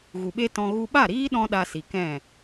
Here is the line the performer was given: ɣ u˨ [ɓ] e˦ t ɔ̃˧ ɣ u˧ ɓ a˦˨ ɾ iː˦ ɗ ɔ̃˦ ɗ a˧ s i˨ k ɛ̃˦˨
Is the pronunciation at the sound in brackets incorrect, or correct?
correct